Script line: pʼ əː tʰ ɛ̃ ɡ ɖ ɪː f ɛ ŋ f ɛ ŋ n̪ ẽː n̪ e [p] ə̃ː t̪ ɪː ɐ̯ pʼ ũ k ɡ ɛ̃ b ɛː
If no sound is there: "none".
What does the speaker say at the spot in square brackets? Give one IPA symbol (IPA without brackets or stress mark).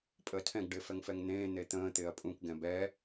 t̪